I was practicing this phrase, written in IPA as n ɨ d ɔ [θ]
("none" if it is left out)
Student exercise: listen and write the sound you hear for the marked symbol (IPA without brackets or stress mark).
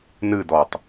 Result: tˤ